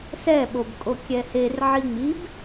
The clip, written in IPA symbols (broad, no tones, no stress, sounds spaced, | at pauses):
s ɛ ɓ o b kʼ o kʲ ɛ h e r ʕ i ŋ͡m i b